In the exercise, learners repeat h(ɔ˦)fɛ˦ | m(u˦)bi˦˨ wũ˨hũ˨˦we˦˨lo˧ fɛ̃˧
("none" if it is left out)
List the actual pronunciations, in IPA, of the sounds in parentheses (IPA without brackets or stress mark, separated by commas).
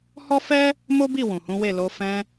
ɔ˦, o˦